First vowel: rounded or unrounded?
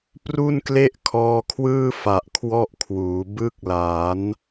rounded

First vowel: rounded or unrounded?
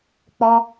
rounded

